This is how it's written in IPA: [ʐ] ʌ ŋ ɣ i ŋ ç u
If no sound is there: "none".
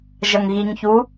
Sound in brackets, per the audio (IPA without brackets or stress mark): ʒ